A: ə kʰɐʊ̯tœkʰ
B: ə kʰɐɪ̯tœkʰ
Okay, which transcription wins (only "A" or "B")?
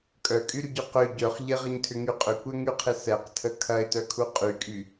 B